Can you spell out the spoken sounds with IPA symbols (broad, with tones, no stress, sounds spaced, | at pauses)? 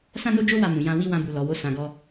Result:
s ã˦ n o˦ d͡ʒ o˦ w a˦˨ m ũ˨ j ã˧ w i˦ w ã˧ b u˨ l ɔ˨ w o˧ s ã˧ ɡ ɔ˦